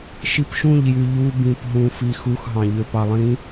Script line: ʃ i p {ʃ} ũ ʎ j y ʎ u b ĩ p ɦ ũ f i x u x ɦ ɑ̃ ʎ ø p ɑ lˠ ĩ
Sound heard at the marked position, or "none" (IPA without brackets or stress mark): ʃ